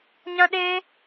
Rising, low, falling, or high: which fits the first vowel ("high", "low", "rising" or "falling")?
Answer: high